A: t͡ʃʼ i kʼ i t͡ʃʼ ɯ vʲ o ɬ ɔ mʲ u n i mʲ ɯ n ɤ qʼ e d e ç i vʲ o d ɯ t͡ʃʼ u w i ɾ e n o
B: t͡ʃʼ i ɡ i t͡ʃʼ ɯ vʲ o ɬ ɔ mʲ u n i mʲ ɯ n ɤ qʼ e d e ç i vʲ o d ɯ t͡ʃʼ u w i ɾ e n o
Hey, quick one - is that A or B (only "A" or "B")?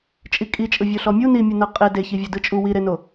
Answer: A